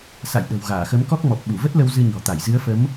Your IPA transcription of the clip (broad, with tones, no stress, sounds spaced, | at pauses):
s a̰˧˨ j ɗ ə̤˨˩ w ɣ aː˧˩ x ə˨˦ m k ɔ˦˥ k̚ m ɔ˨˩ p̚ ɓ u˧˩ v ə˦˥ t̚ l ə˧ w z ɨ˧ ɲ ɔ̤˨˩ t̪ a˧˩ j z ɨ˨˦ ə̯ f ə˨˦ m